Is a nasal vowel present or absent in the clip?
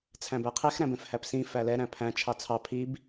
present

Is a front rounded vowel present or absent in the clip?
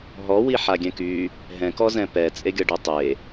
present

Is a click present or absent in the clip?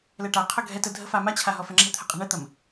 present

